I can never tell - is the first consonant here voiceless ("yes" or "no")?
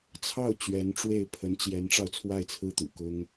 yes